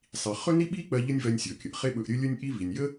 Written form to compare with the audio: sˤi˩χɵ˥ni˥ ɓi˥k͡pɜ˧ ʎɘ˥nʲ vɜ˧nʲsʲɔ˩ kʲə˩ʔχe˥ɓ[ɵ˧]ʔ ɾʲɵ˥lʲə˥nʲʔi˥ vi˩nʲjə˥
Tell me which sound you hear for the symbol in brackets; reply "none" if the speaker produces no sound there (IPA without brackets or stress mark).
ɵ˧